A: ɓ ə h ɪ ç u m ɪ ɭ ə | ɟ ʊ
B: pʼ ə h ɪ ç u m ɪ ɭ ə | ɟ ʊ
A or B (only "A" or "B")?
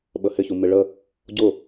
A